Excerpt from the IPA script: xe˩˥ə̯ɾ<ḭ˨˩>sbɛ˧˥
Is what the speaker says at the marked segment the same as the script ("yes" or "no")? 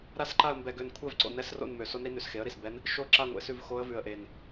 no